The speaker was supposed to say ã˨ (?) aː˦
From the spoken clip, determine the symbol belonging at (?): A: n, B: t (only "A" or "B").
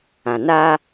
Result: A